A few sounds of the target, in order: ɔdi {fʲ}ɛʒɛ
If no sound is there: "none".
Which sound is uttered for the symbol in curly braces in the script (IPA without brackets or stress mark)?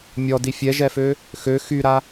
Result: fʲ